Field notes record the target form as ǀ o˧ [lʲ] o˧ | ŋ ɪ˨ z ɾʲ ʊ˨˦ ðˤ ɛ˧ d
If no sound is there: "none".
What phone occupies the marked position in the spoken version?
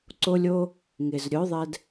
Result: lʲ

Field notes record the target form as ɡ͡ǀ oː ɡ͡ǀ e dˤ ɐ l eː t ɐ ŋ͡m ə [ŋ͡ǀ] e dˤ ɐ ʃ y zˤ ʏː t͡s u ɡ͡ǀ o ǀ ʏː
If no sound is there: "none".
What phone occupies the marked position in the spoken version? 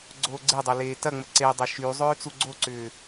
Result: ǀ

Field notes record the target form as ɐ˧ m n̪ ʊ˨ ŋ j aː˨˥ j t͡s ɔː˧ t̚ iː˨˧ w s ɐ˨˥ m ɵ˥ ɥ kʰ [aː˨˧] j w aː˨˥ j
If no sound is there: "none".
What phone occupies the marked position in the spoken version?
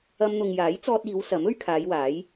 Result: aː˨˧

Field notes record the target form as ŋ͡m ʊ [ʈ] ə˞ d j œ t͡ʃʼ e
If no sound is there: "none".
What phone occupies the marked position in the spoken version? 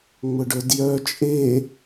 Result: ɖ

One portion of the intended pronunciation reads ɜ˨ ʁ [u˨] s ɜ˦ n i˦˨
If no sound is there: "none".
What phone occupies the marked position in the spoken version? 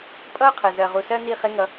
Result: u˨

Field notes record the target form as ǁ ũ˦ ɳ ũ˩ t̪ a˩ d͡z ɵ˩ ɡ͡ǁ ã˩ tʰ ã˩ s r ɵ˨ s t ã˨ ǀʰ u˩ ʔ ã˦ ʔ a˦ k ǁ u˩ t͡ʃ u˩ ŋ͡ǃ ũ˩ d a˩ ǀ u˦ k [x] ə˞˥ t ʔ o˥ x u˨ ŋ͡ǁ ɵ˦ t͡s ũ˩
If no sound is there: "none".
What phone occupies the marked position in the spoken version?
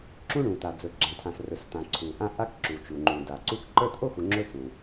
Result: ǃ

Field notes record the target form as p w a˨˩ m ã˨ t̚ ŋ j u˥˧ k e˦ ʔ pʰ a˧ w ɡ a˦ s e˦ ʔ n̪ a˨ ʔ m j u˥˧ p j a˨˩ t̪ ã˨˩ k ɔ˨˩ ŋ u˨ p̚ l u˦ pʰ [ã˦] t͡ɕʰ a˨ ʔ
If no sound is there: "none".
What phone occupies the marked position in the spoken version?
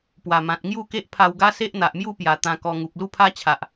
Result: a˦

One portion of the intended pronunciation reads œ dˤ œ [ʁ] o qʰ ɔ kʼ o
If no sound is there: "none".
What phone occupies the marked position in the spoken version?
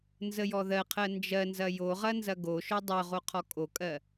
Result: ʁ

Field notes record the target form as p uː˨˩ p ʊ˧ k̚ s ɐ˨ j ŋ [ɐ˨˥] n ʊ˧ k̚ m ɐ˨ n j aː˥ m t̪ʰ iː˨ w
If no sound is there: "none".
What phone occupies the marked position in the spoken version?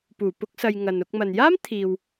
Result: ɐ˨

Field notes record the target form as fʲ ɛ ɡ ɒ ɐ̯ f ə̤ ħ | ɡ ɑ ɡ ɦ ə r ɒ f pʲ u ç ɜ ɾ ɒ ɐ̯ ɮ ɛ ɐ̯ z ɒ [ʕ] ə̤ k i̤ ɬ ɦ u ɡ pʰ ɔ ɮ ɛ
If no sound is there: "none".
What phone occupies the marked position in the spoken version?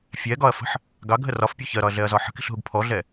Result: ħ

